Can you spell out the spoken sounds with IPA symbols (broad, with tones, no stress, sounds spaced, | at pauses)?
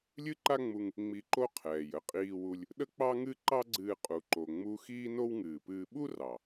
lʲ ɨ˥ ǃ a˥ ŋ͡m u˧ ŋ | ŋ͡m i˧ ǃ o˥ qʰ ɛː˩ j ə˥ qʼ iː˧ w u˧ lʲ | ɗ ə˥ k͡p ɑ˥ ŋ ɨ˥ ǃ ɑ˥ ɡ͡ǀ ɨː˧ qʼ u˩ ǃ o˩ ŋ͡m u˧ x iː˥ n o˥ w ŋ ɨː˩ p ɨː˧ ɓ u˥ r ɑ˩